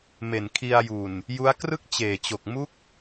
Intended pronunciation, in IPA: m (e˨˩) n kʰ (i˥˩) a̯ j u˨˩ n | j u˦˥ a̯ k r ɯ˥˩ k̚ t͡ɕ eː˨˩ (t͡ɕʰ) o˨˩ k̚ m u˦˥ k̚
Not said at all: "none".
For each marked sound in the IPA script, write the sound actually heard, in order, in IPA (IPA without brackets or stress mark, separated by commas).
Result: e˨˩, i˧, t͡ɕ